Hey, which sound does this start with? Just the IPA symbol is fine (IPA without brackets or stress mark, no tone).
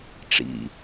ʈ͡ʂ